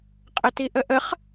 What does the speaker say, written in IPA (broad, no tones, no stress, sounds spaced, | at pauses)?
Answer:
qʼ ə t i ʔ ə ʔ ə χ